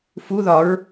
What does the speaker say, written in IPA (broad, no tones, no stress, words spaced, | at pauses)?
fu ðɒɹ